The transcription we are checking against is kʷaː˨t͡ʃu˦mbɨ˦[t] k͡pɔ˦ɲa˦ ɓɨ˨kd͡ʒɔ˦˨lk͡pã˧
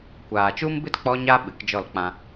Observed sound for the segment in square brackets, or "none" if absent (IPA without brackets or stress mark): t